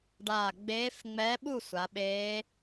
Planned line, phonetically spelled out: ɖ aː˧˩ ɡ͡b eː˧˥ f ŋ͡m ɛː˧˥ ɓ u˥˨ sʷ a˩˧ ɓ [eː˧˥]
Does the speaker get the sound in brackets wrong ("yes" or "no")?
no